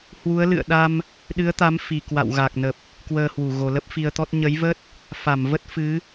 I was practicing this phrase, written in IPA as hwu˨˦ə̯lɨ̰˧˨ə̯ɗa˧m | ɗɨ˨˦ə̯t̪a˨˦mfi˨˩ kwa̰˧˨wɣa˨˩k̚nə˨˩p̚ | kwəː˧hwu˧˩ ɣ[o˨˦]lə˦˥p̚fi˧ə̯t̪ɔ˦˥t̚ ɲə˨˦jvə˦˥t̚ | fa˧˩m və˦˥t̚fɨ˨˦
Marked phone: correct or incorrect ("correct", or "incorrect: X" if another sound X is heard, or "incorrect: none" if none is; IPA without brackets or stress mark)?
incorrect: o˨˩